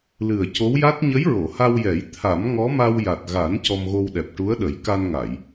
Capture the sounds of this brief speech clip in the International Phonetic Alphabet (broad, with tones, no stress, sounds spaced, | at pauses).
l ɨ˨˩ ə̯ c o˧˥ w j a˦˥ t̚ ɲ ə˧˥ j ɹ o˨˩˨ h a˧ w j ɛ˨˩˦ j t̪ʰ a˨˩˦ m ŋ ɔ˧˥ m a˧ w j a˨˩ t̚ ɣ a˨˩˦ n c ɔ˧ m ɣ o˧ w ɗ ɛ˨˩ p̚ ʈ u˧˥ ə̯ ɗ ə˨˩˦ j k a˧ n ŋ a˨˩˨ j